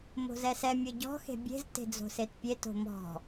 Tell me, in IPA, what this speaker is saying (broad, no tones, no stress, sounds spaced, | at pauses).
m o̤ z ɛ s ɛ mʲ ɤ ɟ ɔ̤ x e̤ bʲ e̤ z t e̤ d͡z o̤ s e t pʲ e t o̤ m ɔ̤